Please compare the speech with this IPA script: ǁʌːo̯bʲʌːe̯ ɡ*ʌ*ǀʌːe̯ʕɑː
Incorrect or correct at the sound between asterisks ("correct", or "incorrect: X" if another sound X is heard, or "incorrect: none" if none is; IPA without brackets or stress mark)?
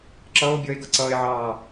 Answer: correct